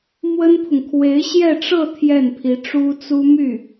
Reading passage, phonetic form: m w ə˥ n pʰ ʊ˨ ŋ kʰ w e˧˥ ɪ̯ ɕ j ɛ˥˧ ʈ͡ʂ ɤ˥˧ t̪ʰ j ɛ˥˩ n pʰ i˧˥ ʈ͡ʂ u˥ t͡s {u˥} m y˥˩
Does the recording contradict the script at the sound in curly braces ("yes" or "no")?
no